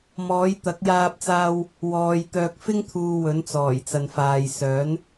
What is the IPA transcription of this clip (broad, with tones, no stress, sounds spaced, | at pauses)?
m ɔː˨˥ j t̪ ɐ˨˥ k̚ j aː˧ p̚ t͡s aː˧ w | w ɔː˨ j t̪ œː˨ k̚ f ɪ˥ ŋ t̪ʰ uː˨ w ɵ˨˥ n t͡s ɔː˨˩ j t͡s ɐ˨ n f aː˨ j s œː˨˥ n